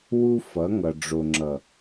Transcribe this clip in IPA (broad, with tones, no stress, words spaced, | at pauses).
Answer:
wu˦fʌ˨˦ŋʌ˨ ɖ͡ʐo˨ŋ͡ǁʌ˨